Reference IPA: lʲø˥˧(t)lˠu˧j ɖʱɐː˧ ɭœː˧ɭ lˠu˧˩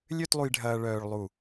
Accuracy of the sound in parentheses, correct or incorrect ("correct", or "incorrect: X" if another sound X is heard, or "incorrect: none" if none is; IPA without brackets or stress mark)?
correct